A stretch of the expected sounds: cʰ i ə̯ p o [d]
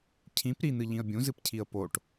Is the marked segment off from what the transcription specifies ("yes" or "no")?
yes